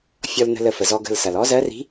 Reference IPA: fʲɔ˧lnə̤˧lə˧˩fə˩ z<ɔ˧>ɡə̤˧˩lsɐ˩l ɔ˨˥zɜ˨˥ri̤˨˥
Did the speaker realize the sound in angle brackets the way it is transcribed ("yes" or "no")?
yes